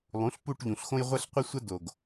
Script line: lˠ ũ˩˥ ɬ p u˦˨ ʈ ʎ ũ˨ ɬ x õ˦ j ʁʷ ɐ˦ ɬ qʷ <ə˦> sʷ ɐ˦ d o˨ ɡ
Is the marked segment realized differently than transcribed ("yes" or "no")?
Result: no